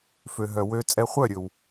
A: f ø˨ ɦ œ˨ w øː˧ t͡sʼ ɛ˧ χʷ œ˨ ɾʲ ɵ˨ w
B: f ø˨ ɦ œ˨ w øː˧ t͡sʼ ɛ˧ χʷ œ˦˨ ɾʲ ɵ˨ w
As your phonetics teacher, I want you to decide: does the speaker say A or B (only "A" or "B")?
B